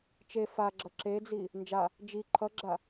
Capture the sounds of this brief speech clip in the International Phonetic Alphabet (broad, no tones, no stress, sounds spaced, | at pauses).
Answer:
t͡ʃ e f a ɡ͡ǁ ʌ ǁ e d͡z i | n d͡ʒ a | d͡ʒ i ǃʰ ʌ ɡ͡ǁ a